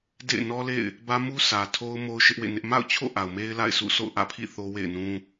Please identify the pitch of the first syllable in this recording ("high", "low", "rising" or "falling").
falling